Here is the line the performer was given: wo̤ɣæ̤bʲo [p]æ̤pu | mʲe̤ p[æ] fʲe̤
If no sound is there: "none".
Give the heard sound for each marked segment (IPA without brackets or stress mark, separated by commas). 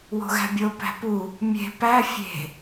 p, æ